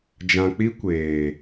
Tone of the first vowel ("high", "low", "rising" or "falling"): low